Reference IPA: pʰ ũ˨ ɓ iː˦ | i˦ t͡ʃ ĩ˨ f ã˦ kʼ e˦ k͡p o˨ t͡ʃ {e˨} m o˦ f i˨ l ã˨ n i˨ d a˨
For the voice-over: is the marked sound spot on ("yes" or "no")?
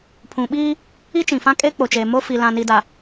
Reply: yes